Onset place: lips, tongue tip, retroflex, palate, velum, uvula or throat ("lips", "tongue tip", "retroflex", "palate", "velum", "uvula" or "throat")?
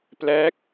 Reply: lips